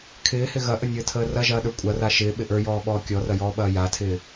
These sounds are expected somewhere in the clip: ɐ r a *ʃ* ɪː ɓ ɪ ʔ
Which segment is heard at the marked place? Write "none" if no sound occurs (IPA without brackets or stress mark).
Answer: ʃ